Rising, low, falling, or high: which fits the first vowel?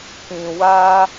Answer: low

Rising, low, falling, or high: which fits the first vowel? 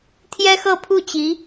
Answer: high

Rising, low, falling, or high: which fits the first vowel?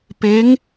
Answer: rising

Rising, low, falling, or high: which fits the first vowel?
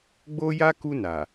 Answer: high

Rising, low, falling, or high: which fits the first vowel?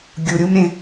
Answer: low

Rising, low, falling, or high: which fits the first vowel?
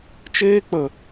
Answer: high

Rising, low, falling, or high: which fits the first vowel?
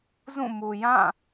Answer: falling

